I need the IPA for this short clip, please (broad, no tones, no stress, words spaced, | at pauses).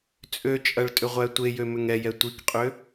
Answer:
t͡sʼøt͡ʃʼɐɭtʼʏʁʷæ tʷejømʏŋ ɛjɛ tʷikqʼø